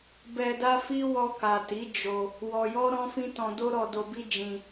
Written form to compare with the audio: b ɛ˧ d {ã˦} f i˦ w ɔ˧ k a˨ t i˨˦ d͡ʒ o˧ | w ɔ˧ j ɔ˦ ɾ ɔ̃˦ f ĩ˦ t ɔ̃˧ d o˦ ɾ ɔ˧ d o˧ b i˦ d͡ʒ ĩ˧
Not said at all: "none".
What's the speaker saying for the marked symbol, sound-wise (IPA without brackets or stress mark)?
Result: a˦